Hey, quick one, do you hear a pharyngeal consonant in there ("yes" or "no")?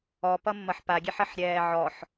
yes